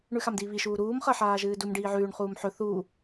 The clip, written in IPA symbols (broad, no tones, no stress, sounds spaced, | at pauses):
ɳ ʉ x a m d iː β i ʃ uː ɾ uː m χ ɐ ħ aː ʒ ɨː d u m ɖ iː ʕ ʉː ɳ χ uː m ħ ɵ θ uː